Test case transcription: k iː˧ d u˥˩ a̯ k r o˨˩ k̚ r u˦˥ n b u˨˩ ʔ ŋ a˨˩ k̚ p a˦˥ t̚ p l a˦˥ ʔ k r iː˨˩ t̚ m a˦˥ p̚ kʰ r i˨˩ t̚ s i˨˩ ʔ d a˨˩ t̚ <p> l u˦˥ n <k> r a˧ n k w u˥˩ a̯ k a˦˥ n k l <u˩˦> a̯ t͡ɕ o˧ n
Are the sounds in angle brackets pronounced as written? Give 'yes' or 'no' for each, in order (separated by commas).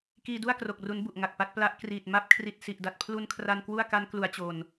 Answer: no, no, yes